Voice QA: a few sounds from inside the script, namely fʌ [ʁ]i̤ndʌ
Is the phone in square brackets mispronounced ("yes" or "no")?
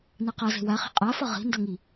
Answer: no